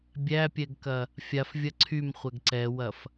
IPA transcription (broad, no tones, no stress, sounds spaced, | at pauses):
bʲ æ pʲ ɛ ɡ k ɐ | fʲ a f vʲ ɐ ǀʰ y m χʷ ɛ ɡ ǀ ɛ w ɐ f